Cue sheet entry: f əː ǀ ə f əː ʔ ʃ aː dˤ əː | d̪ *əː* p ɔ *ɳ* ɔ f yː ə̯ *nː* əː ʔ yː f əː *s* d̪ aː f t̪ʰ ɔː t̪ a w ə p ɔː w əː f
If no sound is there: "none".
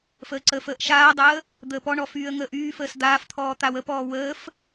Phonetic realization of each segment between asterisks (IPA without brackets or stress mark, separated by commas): əː, ɳ, ŋ, s